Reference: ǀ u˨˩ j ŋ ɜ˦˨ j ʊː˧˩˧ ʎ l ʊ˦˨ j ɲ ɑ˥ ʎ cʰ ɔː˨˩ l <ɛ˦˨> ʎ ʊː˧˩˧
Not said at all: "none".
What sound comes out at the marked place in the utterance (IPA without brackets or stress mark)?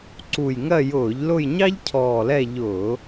ɛ˦˨